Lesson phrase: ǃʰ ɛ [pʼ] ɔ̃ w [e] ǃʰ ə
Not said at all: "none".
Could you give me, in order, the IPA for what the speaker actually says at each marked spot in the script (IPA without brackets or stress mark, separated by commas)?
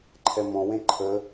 m, ẽ